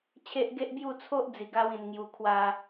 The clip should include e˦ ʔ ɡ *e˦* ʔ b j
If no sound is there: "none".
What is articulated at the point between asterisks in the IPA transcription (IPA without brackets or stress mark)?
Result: e˦